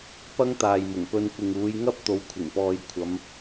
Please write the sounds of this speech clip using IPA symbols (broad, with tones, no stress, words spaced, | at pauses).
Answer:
pɐ˥ŋt̪aː˨jmʊ˨˩ŋpɵ˧n kʷɪ˨ŋ uː˨˧jŋɐ˥p̚t̪o˨˧w kʷʰɪ˨˩ŋpɔː˨jkʷʰɐ˨˧m